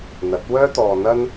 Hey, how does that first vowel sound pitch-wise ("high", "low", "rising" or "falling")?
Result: rising